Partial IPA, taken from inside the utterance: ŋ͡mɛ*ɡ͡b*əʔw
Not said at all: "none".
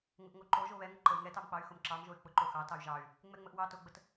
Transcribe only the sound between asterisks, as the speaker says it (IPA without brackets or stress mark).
ŋ͡m